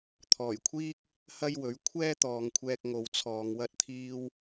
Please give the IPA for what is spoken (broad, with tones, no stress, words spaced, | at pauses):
t̪ʰɔː˨˩jkʷʰiː˥k̚ | hɐ˥jwɵ˨˥ɥ kʷʰɛː˥t̪ɔː˨ŋkʷʰɛː˧k̚ ŋo˨wt͡sʰɔː˨ŋ wɐ˥t̚t̪ʰiː˥w